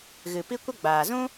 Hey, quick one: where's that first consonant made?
velum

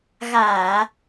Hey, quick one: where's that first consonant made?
velum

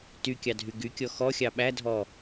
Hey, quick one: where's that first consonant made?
tongue tip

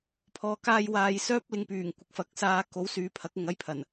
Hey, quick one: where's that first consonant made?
lips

